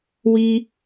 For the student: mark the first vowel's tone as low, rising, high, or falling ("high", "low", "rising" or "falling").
high